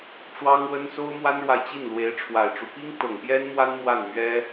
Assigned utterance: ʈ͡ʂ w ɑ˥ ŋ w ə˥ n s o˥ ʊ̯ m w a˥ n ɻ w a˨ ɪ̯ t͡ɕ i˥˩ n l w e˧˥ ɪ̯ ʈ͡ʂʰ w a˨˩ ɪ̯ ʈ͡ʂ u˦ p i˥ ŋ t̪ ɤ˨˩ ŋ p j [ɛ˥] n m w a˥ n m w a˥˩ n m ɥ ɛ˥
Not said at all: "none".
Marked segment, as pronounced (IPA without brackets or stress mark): ɛ˥